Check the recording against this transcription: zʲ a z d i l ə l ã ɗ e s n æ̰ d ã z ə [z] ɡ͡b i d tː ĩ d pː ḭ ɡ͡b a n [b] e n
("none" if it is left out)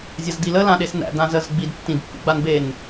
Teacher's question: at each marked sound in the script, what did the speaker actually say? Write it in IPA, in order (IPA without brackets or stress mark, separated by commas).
z, b